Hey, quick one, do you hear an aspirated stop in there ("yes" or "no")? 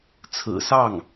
yes